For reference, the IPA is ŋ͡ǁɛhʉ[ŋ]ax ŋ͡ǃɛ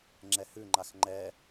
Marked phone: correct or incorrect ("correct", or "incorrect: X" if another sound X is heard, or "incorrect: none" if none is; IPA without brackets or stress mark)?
incorrect: ŋ͡ǃ